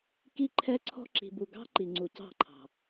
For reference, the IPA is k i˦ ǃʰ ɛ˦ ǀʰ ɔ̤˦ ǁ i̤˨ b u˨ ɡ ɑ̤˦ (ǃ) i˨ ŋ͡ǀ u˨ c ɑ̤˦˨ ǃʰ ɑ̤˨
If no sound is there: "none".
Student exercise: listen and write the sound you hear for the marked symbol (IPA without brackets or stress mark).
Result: ǃ